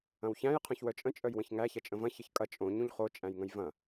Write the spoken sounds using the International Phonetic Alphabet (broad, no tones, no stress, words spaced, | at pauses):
ɐ̃wçæ̃j qʰœ̃çwœt͡ʃʼə̃ t͡ʃʼœjwə̃çŋæ çɐt͡ʃʼə̃vɐ̃ çəçkʼɐ t͡ʃʼõ ɲũʎχo t͡ʃʼæ̃jŋə̃jvɐ̃